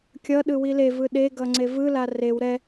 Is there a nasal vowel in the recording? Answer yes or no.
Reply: no